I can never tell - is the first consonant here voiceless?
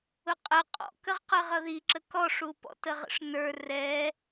yes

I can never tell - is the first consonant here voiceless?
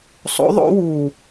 yes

